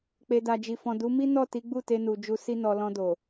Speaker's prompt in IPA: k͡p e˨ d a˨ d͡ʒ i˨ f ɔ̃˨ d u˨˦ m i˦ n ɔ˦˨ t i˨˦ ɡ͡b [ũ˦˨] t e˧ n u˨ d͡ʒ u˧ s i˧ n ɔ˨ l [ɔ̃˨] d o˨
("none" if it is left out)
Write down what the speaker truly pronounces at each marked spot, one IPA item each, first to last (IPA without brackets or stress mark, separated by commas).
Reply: u˦˨, ɔ̃˧